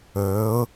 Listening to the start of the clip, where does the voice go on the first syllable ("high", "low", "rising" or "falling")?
rising